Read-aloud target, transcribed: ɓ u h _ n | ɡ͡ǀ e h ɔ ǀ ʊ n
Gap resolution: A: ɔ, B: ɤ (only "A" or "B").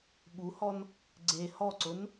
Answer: A